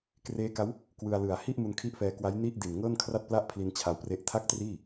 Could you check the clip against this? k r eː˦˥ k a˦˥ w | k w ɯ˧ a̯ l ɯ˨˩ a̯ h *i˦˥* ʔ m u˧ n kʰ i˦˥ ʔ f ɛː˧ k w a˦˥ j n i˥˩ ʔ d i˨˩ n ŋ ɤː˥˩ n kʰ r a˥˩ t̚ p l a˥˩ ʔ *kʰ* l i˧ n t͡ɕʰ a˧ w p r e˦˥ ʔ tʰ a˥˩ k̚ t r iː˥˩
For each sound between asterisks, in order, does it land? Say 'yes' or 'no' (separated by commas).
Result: no, no